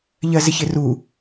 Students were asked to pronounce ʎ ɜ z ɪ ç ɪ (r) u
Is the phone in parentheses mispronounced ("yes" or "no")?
no